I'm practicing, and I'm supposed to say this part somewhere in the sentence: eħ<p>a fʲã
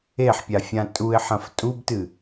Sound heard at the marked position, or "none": pʲ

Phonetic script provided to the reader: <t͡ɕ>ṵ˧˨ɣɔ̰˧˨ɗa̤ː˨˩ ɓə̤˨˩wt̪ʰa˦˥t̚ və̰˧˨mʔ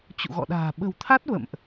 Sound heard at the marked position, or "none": t͡ɕ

